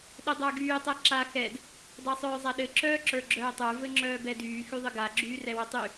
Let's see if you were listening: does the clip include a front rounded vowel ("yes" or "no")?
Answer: yes